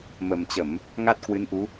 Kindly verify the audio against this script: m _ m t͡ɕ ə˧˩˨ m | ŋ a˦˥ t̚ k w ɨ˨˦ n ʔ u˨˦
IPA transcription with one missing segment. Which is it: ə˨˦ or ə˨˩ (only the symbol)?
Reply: ə˨˩